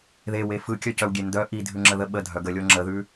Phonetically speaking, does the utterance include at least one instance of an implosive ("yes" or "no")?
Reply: yes